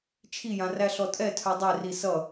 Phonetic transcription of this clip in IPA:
t͡ʃʰ i j ã r æ ɬ ɔ tʼ ɛ tʰ œ dˤ ɛ r i s ʌ

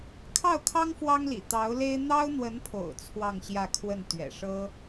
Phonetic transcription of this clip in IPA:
kʰ ɑ˥˩ ʊ̯ kʰ ɑ˥ ŋ f w ɑ˥ ŋ l ḭ˨˩ t̪ ɑ˧˥ ʊ̯ l e˥ ɪ̯ n̪ ɑ˥ ʊ̯ n̪ w ə˧˥ n pʰ o̰˨˩ ʊ̯ t͡sʰ w ɑ˥˧ ŋ ɕ j ä˥˧ kʰ w ə˥˩ n t̪ ɥ ɛ̰˨˩ ʂ ɤ˥

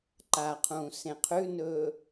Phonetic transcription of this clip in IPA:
ǃ a qʰ ũː s ẽ qʰ ʉ n ɵː

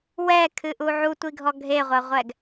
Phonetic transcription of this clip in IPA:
w ɛ kʰ ɨ ʔ u ʕ u tʷ i ɡʱ ɔ ɡʱ e ʁʷ ɐ ʁʷ ɛ ɡ

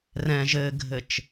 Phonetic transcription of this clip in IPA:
r ɛ̃ ʒ ɘ ɡʱ ɘ t͡ʃ

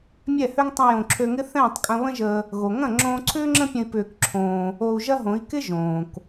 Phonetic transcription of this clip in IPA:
mʲ ɛ˦˨ h ø˦ ŋ tˤ ə̃˦ j õ˧ ǁʰ ø˧ ŋ ɪ˦ θ ɛ̃ː˦˨ tˤ kʼ ɐ̃˧ β ə̃˦ ʒ əː˧ | ɣ o˨ ŋ ɐ̃˦˨ ŋ͡ǁ õː˧ ǀʰ ʏː˦ ŋ͡ǁ ə̃˦ pʲ ə̃˧ i̯ p ʏː˧ k ǁʰ õː˧ | o˧ u̯ ʒ ɐ˦ ɦ õ˨˦ i̯ k ɪ˦ ʒ õː˨ k

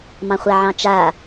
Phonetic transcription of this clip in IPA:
m ɑ̃ χʷ a ʕ ɑ̃ t͡ʃ a

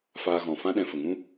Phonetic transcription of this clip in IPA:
f aː˧ ɣ ɔ̃˨ f ã˦ ɗ ɛ̃˧ f ə˨ ŋ ũ˦

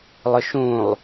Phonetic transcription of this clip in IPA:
lˠ ʊ ʃ ũ lˠ

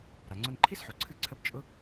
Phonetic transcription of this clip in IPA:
ɾ a˩ ŋ͡ǀ ʊ˧ n ǃʰ i˥ s ħ o˩ ǀʰ ɨ˧ ǀʰ ə˧ b t͡ʃʼ ʊ˥

